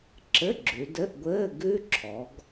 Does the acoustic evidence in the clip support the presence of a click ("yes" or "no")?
yes